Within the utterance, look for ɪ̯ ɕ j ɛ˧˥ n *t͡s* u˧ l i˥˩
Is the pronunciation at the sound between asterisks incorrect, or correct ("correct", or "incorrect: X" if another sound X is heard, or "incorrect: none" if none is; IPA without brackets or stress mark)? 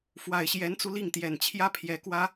correct